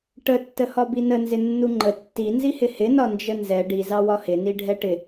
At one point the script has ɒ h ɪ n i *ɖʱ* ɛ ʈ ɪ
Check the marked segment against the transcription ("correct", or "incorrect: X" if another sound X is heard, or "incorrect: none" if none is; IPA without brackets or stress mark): correct